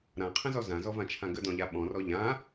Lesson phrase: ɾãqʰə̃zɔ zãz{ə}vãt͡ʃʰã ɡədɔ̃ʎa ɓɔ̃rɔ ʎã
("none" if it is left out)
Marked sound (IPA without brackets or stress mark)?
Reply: ɔ